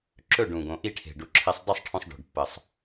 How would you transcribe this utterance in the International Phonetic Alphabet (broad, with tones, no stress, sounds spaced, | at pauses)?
ǁ ɵ˥˨ ɖ ũ˨˩ ɡ õ˨˩ ʔ i˥˨ ʈʰ e̤˨˩ ɖ u˨˩ ǁʰ e˧ sˤ dˤ ɐ˥˨ sˤ ʈʰ õ˧ sˤ ɖ o̤˨˩ ɖ pː ɐ˨˩ sˤ